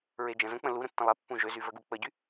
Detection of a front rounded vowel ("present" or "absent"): present